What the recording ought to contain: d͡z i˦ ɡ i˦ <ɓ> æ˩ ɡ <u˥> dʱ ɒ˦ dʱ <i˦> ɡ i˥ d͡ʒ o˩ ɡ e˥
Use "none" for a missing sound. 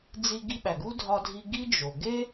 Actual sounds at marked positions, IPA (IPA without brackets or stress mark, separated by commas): ɓ, u˥, i˦